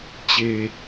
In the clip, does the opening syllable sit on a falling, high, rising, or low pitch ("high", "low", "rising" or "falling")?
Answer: low